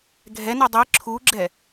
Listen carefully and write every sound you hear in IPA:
ɡʱ ɛ n i dˤ i ǁʰ u ɡ͡ǁ ɛ

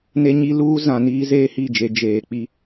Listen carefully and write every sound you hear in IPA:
n e˦ ɲ i˦ l uː˦ z ã˨ n iː˦ z eː˦ h i˦˨ d͡ʒ e˨˦ d͡ʒ eː˨ k͡p i˦

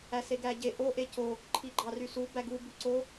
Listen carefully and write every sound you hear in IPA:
æ s e ɡ æ ɟ e ʔ o ʔ e c o | ǃʰ i ɡ͡ǃ ɑ r y s u b æ ɡ u b y ǀ o

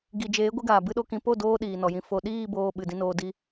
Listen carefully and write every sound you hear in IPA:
ɡ i˨ d͡ʒ eː˨˦ ɡʷ ɨ˧ ɡ aː˨ b ɨ˦ ɗ o˦ k ĩ˧ p o˦˨ d oː˧ ɗ iː˨ n ɔ˨ j ĩ˧ f o˨ ɗ iː˦˨ b oː˨ ɓ ɨ˨ d ĩ˧ n oː˧ d i˦

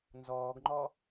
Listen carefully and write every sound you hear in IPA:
n z ɔː ɡ ŋ͡ǃ ɔ

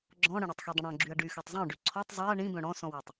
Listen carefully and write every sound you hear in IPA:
ɡ͡ǁ ɔ̃ ɽ ə̃ ɽ e tˤ x i dˤ ə̃ ɽ ɔ̃ ɡ͡ǁ y ɐ̯ ɖ y x ø tˤ zˤ œ̃ ɖ y ǀʰ ɔ tˤ zˤ e ɐ̯ ɳ ĩ b œ̃ ɽ ɔ̃ s ɔ̃ w ɛ tˤ

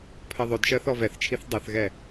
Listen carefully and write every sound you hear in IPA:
pʰ ɜ ðˤ ɵ d ʃ ɜ θ ɔ v ɛ θ t͡ʃʰ i θ dˤ ɜ θ ɣ ɛ

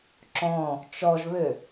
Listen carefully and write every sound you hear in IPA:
ǁ ɔ̃ | t͡ʃ ɔ ʒ β ø

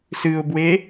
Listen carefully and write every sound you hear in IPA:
s ɨ ʊ̯ b w e

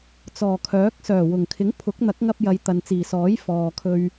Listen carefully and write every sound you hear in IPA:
t͡s ɔː˨˩ kʰ œː˨˥ k̚ s œː˨˩ w ʊ˨˩ ŋ kʰ ɪ˨˥ ŋ pʰ ʊ˨˥ k̚ n̪ ɐ˨˥ k̚ ŋ ɐ˧ p̚ j ɐ˨˧ j t̪ ɐ˨ n t͡s iː˨˩ s ɔː˨˥ j f ɔː˨ kʰ ɵ˧ ɥ

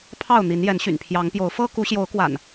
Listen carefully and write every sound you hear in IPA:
pʰ ɑ˥˨ ʊ̯ n̪ i˨˦ n j ɛ˨˦ n ɕ y̰˨˩ n pʰ j ɑ˨˦ ŋ p j o˨˦ ʊ̯ f ɤ˦ k u˨˦ ɕ j o˨˦ ʊ̯ k w a̰˨˩ n

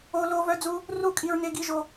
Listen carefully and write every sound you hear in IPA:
o˧ l o˧ v œ˦ d͡z u˦ | r u˦˨ kʼ i˧ ɹ n e˧ ɡ i˧ ʒ o˧

